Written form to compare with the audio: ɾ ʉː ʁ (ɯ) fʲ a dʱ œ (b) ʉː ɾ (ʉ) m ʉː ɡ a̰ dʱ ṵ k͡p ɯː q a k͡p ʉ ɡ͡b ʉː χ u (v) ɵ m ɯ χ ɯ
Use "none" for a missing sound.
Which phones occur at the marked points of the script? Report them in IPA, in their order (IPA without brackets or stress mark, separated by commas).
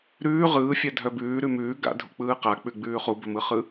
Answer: ɯː, b, ʉ, b